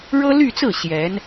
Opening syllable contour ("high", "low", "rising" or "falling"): high